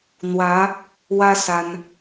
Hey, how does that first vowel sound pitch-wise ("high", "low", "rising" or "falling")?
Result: rising